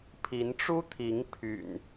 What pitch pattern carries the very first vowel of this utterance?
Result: rising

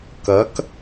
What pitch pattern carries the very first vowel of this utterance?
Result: rising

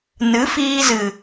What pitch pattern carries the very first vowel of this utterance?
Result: rising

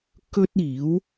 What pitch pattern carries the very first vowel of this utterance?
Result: high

